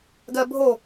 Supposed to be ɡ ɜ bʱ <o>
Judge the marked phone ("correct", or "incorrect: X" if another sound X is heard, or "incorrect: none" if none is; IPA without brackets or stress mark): correct